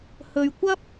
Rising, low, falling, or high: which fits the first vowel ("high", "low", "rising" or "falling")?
low